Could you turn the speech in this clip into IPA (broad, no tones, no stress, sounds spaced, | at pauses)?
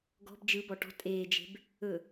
ɡ ɔ̤ b d͡ʒ ɯ b ɔ ʈ ɔ̤ tʼ eː d͡ʒ e̤ b | ɵ